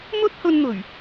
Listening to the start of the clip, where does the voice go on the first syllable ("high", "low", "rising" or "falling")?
high